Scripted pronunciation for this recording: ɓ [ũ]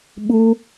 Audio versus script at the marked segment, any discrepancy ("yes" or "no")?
yes